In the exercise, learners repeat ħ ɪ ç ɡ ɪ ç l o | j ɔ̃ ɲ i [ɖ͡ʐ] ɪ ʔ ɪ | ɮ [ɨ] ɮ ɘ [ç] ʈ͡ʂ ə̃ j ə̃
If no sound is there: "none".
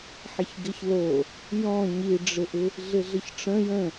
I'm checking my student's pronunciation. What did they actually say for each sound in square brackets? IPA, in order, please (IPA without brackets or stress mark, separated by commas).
ɖ͡ʐ, ɪ, ç